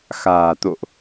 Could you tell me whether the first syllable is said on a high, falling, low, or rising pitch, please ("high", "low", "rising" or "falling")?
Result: low